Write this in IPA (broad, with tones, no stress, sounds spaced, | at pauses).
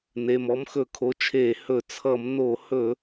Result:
n e˩˧˩ m ɔ˨˥ m x ɵ˧˩˧ kʰ o˩˧˩ t͡ʃʰ eː˧˩˧ h ɵ˧˩˧ t͡sʰ ʌ˧˩˧ m n o˧˩˧ h ɵ˧˩˧